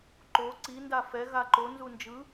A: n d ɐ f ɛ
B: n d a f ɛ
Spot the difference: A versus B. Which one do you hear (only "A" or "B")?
B